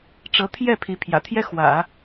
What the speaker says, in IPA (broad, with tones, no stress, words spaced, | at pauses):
ʈ͡ʂɤ˧˥t̪ʰjɛ˥˩ pʰi˧˥pʰjä̰˨˩t̪ʰjɛ˥ xwä̰˨˩˦